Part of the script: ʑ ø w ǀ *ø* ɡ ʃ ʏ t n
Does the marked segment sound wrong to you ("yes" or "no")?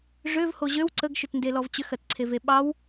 yes